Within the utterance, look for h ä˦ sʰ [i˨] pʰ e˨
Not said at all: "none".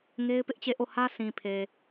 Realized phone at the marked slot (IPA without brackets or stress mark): ĩ˨